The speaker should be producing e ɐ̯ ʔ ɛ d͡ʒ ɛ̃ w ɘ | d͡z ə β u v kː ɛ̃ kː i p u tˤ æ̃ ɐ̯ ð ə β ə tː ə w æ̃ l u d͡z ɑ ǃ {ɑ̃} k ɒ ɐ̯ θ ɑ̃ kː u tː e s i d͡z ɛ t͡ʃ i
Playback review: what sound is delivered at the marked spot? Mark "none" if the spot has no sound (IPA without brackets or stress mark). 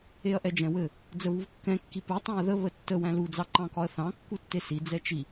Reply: ɑ̃